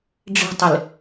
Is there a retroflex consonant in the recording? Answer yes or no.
yes